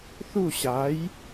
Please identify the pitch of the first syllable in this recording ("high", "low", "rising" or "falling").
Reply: falling